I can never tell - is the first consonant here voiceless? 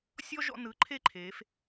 yes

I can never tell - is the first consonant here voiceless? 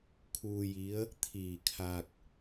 yes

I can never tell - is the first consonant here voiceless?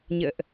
no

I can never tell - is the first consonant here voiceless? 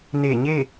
no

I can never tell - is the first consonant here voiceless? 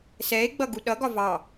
yes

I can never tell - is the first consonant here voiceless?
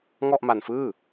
no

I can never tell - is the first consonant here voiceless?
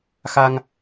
yes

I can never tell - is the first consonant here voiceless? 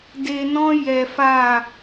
no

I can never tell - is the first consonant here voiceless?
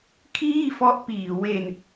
yes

